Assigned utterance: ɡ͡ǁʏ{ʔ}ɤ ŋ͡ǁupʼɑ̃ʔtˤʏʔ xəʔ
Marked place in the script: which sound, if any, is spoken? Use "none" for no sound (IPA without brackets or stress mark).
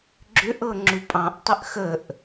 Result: ʔ